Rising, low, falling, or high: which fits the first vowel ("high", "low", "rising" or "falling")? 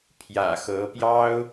low